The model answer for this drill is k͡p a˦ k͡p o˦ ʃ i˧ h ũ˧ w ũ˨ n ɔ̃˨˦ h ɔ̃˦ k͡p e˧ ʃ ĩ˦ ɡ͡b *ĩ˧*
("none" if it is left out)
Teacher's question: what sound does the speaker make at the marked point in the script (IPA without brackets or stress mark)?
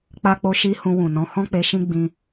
ĩ˧